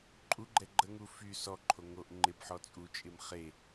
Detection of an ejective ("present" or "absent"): present